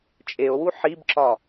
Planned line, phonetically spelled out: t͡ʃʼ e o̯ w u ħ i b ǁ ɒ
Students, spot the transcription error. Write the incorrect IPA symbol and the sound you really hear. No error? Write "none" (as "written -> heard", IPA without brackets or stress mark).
none